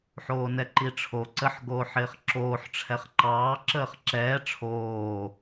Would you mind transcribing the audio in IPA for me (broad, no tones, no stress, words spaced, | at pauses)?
ħoːnɛǃiʈ͡ʂʰo ǀəħ ɡoːħɪːχǁoːħ ʈ͡ʂʰɛχǃɑː ǁəːχǁɛː ʈ͡ʂʰoː